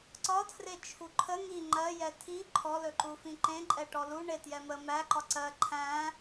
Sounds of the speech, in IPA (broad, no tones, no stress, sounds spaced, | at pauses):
ǀ ɒ tʰ r e t͡ʃʰ u ǃʰ ə ŋ i ŋ͡ǃ ɜ j ɛ tʰ i ǃʰ ɔ l ɵ ǃ u f ĩ ǃ ẽ ǃʼ ɛ ʈ ɔ l u ɳ e t j ɛ m ə m æ ǃ ɒ ǀ ɜ ǃʰ æ̃